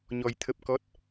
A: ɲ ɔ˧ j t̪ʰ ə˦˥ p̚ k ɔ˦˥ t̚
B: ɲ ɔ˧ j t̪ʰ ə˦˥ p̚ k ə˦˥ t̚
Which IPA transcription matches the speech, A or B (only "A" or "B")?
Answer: A